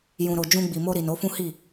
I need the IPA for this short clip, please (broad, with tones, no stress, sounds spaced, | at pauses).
j ũ˨ ɾ o˨ d͡ʒ ũ˧ ɡ͡b i˨ m o˧ ɾ i˨ n o˨˦ f ũ˦ h i˦˨